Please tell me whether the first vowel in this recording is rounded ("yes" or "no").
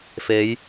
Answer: no